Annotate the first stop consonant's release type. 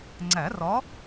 click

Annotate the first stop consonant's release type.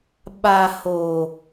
implosive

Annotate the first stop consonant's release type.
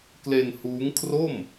plain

